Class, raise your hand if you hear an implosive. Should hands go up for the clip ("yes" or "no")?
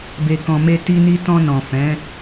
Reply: no